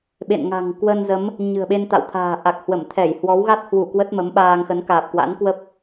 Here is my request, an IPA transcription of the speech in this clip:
ɓḛ˧˨nŋa̤˨˩ŋ kwə˧nzə˨˦m | ɲɨ̤˨˩ə̯ɓe˧nt̪a̰˧˨wt̪ʰa̤ː˨˩ ʔa˨˩k̚hwə˧˩mt̪ʰɛ˧˩j hwɔ˨˦wɣa˦˥t̚hwu˧˩ kwə˦˥t̚mə˨˦m ɓaː˧ŋxə˨˦n kaː˨˩p̚kwa̰˧˥n kwə˦˥p̚

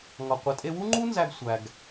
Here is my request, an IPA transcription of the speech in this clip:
ŋɒ˩qʷe˩ tʼe˧wu˥ŋ͡ǃu˥nzæ˧ɡ sʷæ˩ɡ

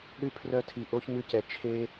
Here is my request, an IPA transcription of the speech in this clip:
ɾʉ˦ pʰrœ˦tʰi˧˩ ʔo˦ç mʉ˦cɛ˧˩ t͡ʃʰe˦

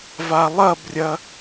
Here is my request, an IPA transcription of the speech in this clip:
valˠɐbrʲɐ

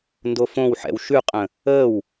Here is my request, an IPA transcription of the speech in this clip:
ndofõw ħɛ̰wʃʉqʼə̃ | əːw

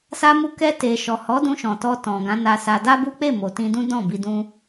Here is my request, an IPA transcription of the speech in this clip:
sa˧mu˧ kɛ˧ te˨ʃɔ˨hɔ˨˦dũ˧ ʃɔ̃˨tɔ˧ tɔ̃˨ ɡã˨˦na˧sa˧ da˦bu˦k͡pe˦˨mo˨ tĩ˧dũ˦ dɔ̃˦˨ bi˧dũ˦

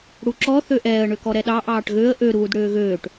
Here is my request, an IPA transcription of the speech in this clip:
ɽuǁɔ θøʔɛːə̯ɳøkɔ ɾɛɗɑ ʔɑːʈɣøə̯ ʔøɾuːd ɽøːɣøːʈ

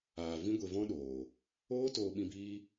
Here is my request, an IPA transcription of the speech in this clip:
aː˨ vĩ˦ɡʷe˧vɔ̃˦ɗoː˨ | oː˦ toː˧ ɓĩ˧biː˦

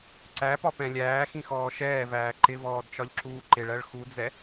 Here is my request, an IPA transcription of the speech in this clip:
ǀæpɒpɛ̃ lʲæːxĩxɔː ʃɛːvæː ǃɪvɔːdt͡ʃɒʎǁuː ǃɪɭɜɭ xud͡zɛ

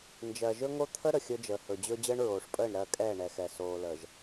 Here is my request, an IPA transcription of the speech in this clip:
nd͡ʒɜ˨ʒɵ˦ŋo˦ t̪ʰə˦ ɾə˨xʲɵ˦d͡ʒəː˨ hɵ˨d͡ʑɵ˦ d͡ʑəː˦ɳɹoː˨ʂpʼəː˦˨ɳ ɾɜ˦˨kʼɛː˦˨ ɳɛ˨xɛ˨ soː˨ləː˨ʒ

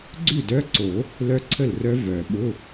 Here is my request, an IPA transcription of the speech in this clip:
ɡ͡ǀʉ˥˩dœ˧˥˧ǀo˨˩˦ | lœ˦˥ǀʰə˥˩lrœ˦˥ vœ˨˩˦ɓʊ˧˥˧

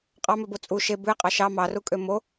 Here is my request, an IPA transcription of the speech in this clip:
qʼɑmøbo t͡sʼu ʃe bʉe̯qʼɑ ʃɑ mɑrukʼø mo

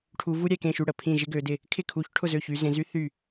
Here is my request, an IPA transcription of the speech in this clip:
ʈʰu˨˦vu˥ɾʲɛ˥˩ kẽ˥˩ʃy˥˩ ɽə˥˩ pʰĩ˥˩ʒɪ˥ɡø˨˦dɪ˥˩ | kʰɪ˥˩kʰu˨˦çʈʰʊ˥˩zø˥˩ çy˨˦zẽ˨˦zy˥θy˥˩

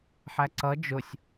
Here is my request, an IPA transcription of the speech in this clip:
ħæǀʌ d͡ʒʊsʲ

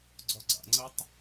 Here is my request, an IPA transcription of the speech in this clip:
ɡ͡ǀɔɡ͡ǀa̰ŋ͡ǀətˤ

